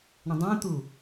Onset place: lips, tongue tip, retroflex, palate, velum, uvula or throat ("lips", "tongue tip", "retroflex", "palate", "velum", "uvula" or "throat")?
retroflex